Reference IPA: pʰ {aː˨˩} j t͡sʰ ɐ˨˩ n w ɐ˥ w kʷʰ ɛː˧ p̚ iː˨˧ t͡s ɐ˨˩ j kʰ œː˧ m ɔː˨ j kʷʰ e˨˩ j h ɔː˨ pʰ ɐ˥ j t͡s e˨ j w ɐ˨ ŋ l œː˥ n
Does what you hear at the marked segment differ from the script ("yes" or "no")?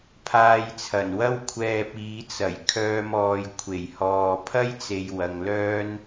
yes